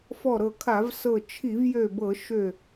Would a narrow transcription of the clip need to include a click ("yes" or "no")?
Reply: no